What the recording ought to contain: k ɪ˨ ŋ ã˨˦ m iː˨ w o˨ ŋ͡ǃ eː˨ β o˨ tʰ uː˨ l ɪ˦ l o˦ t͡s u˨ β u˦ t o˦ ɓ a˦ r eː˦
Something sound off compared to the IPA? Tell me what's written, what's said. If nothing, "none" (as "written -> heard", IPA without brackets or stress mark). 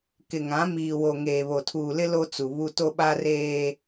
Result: ŋ͡ǃ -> ŋ